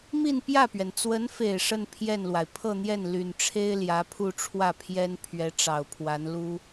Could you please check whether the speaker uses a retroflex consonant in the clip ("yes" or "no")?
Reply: yes